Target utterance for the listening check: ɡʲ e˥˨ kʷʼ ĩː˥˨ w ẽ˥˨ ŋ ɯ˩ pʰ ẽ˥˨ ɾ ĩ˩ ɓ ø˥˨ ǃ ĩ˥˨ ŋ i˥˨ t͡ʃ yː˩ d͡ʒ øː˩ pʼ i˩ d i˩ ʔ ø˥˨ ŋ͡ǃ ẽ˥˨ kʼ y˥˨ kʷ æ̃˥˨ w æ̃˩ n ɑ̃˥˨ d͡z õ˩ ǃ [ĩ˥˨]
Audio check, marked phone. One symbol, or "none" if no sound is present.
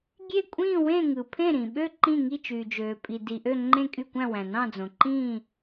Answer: ĩː˥˨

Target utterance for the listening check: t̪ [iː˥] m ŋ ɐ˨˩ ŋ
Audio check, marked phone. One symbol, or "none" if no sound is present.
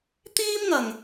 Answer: iː˥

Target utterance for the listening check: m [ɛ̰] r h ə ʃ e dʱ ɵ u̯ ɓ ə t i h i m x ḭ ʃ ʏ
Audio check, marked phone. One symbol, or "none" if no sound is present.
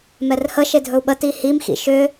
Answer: ɛ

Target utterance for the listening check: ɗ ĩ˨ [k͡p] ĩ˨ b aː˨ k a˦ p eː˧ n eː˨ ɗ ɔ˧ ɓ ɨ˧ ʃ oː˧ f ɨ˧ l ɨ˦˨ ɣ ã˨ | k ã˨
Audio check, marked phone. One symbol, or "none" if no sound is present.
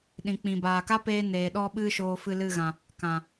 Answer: k͡p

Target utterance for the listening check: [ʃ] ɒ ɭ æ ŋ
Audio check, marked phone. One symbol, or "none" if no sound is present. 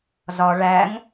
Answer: z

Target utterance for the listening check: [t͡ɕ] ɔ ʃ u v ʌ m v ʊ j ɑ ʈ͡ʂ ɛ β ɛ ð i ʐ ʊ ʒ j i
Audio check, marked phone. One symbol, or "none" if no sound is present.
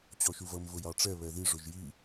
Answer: t͡ɕ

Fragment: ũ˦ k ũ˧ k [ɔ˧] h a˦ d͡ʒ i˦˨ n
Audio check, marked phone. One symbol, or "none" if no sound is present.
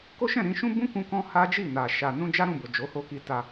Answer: ɔ̃˧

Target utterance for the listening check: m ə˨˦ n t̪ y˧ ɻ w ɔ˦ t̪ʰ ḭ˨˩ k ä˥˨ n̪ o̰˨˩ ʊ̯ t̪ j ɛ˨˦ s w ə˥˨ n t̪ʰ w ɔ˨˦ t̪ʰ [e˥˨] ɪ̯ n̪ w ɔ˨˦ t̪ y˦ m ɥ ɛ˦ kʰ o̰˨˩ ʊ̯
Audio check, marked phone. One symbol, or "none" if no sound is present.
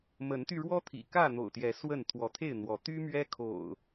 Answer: e˥˨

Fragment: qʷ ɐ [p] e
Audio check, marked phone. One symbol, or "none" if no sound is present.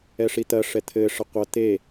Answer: t̪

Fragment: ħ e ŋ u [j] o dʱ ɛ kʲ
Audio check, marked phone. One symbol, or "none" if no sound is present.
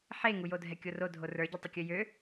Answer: j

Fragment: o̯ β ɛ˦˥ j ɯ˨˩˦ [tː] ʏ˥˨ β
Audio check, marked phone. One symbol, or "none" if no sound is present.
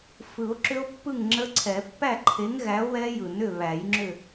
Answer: n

